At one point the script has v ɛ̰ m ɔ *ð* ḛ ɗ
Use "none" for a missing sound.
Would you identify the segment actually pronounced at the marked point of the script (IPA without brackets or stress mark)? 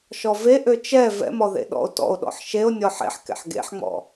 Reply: ð